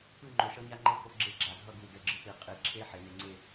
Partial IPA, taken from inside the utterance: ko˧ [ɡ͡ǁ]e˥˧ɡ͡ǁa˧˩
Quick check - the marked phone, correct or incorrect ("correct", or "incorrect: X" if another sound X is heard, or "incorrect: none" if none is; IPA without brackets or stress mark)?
correct